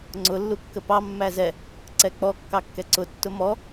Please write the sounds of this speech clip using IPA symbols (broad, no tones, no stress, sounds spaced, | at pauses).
ŋ͡ǀ ʊ lː u kː ə p ɑ mː æ z ɛ | ǀ ɛ k͡p ɔ kː ɑ kː ɛ ǀ ʊ tː ʊ m ɔ